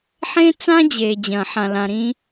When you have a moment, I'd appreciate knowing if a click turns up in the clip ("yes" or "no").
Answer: no